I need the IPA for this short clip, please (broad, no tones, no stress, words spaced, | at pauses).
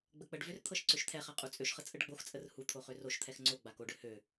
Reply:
ɡ͡bək͡pəɖvør t̪ʰɤʃǀøʃt̪ʰɛχa qʼut͡sʼøʃχə t͡sʼəɖɡ͡boxt͡sʼər hut̪ʰo χøroʃt̪ʰɛx ŋ͡ǀo ɡ͡bakoɖø hø